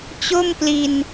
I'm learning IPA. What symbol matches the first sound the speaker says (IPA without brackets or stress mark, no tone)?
t͡ɕ